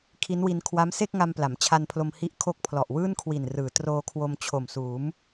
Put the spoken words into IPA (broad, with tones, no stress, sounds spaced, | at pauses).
kʰ i˦˥ n w i˧ n kʰ w a˦˥ m s e˥˩ k̚ ŋ a˧ m p l a˩˦ m t͡ɕʰ a˧ n pʰ l o˧ m h i˦˥ ʔ kʰ o˦˥ k̚ pʰ l ɔ˨˩ ʔ w ɯː˥˩ n kʰ w i˨˩ n r ɯː˩˦ t r oː˧ kʰ w o˧ m t͡ɕʰ o˨˩ m s uː˩˦ m